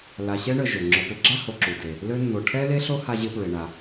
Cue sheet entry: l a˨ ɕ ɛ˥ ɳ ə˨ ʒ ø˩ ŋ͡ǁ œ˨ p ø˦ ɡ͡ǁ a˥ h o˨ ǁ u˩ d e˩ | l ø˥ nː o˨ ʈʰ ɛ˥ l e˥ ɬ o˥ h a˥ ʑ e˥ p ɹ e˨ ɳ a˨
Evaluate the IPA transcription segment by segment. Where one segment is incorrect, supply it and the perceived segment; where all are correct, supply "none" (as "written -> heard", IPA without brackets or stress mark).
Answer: none